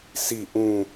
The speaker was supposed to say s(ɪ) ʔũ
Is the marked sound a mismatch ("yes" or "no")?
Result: yes